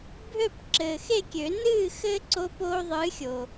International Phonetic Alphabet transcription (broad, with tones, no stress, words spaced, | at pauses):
bʱø˥˨p ǁɘː˨xe˥˨kʲø˨˩˦ nɨː˥˨xɘ˦ ǀo˦poː˦ðˤɨː˨˥xʲo˨